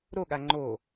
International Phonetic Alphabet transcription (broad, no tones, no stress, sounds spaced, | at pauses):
ɾ o ɠ a ŋ͡ǃ o